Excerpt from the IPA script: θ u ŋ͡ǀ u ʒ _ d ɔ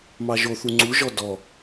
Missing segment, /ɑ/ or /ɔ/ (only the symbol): ɔ